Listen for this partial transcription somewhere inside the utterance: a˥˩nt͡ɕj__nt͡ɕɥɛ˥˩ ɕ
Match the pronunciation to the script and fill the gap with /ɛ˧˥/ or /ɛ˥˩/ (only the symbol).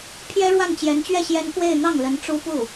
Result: ɛ˧˥